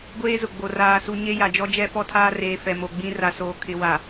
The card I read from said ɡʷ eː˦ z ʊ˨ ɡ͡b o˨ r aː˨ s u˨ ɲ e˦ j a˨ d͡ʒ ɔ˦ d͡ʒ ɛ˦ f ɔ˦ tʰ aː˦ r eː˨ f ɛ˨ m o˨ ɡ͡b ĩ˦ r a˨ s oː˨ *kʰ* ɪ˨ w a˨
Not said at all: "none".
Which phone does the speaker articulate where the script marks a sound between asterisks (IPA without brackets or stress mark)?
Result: kʰ